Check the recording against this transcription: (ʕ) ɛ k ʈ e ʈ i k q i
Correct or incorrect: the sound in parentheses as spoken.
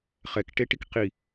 incorrect: χ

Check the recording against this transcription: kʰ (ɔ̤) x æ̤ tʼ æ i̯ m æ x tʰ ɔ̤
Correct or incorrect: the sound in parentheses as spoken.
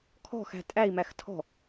correct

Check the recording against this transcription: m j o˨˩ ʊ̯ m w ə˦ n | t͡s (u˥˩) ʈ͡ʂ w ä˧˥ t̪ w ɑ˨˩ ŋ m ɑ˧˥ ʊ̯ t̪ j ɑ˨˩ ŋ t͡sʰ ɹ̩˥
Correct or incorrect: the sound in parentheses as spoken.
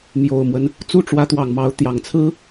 correct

